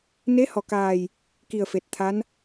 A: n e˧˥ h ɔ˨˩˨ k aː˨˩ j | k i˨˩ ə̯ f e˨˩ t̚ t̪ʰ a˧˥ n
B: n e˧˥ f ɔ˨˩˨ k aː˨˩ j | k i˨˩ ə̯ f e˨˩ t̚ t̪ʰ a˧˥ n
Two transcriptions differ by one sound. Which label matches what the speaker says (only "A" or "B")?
A